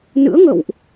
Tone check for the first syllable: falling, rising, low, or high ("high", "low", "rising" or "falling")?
rising